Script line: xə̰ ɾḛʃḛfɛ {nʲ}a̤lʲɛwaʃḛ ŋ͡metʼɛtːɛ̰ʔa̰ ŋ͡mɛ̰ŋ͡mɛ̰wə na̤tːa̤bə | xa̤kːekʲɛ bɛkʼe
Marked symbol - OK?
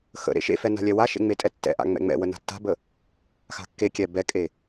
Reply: no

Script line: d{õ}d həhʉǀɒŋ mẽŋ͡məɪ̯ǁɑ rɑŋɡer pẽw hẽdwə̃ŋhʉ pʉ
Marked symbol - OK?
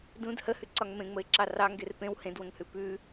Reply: no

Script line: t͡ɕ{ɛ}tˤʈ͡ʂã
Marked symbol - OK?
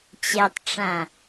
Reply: yes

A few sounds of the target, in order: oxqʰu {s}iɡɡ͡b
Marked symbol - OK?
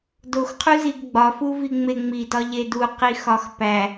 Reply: no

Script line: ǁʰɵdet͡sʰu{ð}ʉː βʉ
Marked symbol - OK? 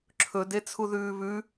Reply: yes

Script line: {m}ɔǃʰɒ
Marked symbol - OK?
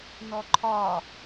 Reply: no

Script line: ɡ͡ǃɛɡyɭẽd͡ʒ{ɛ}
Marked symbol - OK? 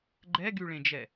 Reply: yes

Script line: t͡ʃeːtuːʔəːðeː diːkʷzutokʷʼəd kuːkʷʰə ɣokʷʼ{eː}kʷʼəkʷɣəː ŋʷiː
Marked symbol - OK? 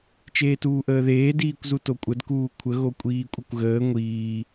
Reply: no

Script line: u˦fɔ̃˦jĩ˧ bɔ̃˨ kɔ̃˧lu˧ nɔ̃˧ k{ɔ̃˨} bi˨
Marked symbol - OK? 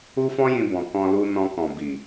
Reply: yes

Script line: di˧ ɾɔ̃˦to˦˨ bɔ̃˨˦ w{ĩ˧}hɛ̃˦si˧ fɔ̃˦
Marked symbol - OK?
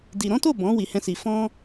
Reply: no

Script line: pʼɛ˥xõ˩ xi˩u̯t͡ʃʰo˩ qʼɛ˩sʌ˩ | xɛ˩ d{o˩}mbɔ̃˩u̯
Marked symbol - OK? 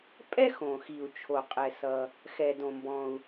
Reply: no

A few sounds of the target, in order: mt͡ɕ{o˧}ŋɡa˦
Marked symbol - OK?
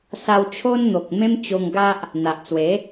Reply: yes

